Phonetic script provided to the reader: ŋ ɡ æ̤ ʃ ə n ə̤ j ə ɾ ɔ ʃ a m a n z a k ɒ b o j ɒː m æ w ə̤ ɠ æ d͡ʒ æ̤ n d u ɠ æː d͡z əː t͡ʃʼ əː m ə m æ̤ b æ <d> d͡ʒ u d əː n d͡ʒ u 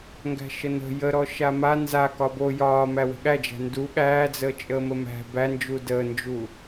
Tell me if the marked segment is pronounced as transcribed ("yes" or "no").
no